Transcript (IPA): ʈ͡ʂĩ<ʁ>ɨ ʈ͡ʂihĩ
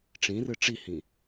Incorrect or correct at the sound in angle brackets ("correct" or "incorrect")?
incorrect